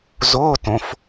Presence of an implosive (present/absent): absent